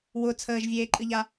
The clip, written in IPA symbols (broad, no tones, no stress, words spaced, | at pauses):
wʊ t͡sʰəːʒvʲeːǃʼɨʎa